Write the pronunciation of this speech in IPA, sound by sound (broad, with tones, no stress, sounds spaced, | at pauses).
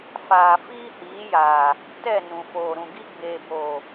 f aː˨ f iː˦ h iː˨˦ j aː˨ | t ɛ˦˨ n ũ˨ f oː˨ ɾ ũ˨ ɡ i˦ ɡ͡b eː˨ b oː˨